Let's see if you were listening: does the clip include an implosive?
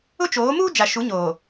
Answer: no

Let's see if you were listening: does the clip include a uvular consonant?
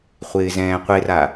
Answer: yes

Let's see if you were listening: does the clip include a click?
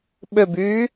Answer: no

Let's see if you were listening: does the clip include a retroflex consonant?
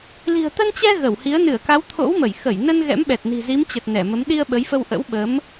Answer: no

